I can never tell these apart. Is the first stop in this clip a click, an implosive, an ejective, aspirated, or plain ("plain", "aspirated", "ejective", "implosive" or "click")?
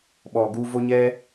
implosive